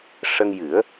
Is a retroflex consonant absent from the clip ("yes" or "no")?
no